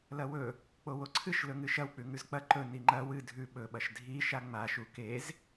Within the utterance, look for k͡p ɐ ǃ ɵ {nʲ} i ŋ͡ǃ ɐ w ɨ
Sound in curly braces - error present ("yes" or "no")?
yes